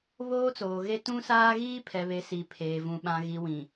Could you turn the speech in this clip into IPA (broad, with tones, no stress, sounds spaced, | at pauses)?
β oː˦ t͡s oː˨ ɣ e˦ t ũ˦ s aː˦ ɣ iː˦ pʰ ɛ˨ β e˨ s i˨ pʰ eː˨ v ũ˨ ɓ ã˨ ɣ i˨ w ĩ˨